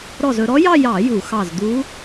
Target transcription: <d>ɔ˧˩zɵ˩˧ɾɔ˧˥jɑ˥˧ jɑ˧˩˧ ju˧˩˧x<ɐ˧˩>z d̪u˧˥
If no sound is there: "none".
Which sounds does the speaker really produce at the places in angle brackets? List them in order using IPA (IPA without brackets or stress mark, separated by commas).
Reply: ɾ, ɑ˧˩